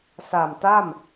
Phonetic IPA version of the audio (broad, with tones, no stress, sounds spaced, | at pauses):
s a˨˩ m t a˥˩ m